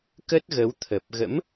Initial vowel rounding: unrounded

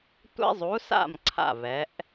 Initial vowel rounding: unrounded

